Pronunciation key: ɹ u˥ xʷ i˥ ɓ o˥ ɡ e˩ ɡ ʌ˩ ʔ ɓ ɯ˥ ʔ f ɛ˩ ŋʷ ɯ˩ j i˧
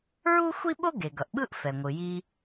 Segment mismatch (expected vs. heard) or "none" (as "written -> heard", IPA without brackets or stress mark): none